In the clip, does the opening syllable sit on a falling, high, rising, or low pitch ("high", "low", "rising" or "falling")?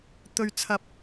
low